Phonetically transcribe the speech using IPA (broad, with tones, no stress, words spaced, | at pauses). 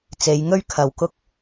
t͡se˨˧jŋɵ˥ɥkʰɐ˨˧w kʊ˧k̚